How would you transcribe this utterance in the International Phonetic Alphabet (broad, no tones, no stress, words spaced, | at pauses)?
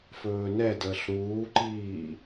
fɵːnɛdəːɬ ɾuːǃiː